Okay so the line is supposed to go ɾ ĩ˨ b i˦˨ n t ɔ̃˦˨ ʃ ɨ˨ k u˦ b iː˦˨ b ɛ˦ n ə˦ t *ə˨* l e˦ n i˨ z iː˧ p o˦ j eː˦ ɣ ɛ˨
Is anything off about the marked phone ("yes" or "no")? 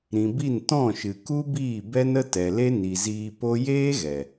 yes